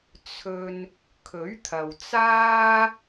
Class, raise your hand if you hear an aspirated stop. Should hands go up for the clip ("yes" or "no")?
yes